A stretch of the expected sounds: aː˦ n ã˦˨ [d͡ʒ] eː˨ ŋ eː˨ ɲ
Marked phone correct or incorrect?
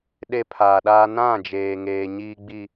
correct